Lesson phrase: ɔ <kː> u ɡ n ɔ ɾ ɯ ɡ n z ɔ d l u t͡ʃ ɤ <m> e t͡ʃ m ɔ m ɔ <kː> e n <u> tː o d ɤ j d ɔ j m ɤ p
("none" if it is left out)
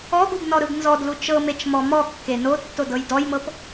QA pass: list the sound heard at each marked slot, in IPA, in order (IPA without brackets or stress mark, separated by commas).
ɡ, m, kː, o